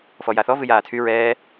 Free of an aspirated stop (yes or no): no